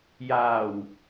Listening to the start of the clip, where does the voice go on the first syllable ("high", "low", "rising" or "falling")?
low